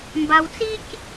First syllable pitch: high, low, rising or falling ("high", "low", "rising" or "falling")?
low